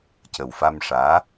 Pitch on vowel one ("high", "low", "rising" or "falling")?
low